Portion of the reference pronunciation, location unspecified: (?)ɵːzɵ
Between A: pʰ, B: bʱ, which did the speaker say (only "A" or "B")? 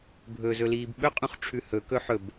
B